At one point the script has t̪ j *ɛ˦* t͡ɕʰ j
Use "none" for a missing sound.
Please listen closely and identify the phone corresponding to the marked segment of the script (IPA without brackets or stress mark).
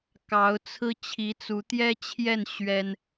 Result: ɛ˦